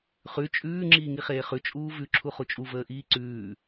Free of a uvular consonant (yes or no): no